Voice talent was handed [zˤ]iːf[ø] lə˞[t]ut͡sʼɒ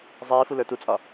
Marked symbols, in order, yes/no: yes, no, yes

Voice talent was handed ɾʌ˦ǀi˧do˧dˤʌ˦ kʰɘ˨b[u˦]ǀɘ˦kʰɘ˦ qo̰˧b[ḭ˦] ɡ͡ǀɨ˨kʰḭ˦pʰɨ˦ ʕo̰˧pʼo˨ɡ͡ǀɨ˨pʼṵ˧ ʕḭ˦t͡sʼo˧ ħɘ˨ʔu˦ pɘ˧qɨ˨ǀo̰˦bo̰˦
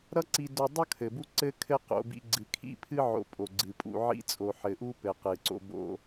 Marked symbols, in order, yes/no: yes, no

